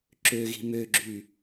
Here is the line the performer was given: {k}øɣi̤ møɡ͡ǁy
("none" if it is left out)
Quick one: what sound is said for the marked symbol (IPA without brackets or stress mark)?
ǁ